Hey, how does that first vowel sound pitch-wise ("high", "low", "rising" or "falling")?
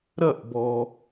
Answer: falling